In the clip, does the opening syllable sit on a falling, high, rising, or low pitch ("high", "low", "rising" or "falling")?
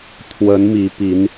rising